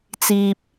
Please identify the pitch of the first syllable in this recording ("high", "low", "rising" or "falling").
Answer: low